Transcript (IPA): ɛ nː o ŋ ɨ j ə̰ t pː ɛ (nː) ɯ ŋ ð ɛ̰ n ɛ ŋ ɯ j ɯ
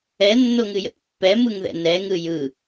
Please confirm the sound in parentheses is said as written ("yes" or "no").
no